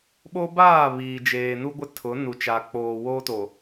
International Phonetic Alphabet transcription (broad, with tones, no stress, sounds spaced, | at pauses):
ɓ o˦ b aː˦˨ β iː˨ d͡ʒ eː˨ n u˦ ɡʷ ɪ˦ tʰ ʊ˨˦ n u˨ t͡ʃ a˨ k͡p oː˨ w oː˦ t o˨